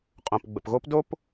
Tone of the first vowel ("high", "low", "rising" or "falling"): low